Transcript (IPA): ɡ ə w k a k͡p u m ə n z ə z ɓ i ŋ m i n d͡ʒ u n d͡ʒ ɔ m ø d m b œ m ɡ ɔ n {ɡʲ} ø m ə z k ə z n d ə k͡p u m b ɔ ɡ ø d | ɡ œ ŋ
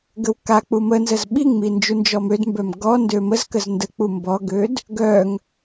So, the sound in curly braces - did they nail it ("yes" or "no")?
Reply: no